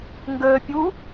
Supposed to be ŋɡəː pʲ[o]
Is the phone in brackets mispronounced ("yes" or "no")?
yes